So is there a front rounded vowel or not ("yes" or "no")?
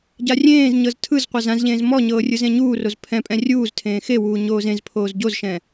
no